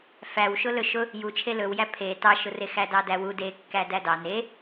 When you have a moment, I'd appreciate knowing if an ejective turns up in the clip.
no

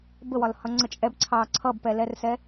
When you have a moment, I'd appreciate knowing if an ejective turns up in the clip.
yes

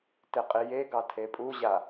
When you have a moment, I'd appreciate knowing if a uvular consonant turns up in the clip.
yes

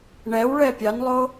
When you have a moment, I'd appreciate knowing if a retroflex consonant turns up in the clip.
yes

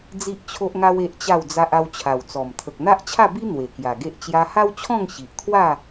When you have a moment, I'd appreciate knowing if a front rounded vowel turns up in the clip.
no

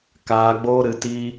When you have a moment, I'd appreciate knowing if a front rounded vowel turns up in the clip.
no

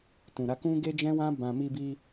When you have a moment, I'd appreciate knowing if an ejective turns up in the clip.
no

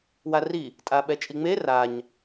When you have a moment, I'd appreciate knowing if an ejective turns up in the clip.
yes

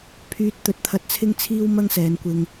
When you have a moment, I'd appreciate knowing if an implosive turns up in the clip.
no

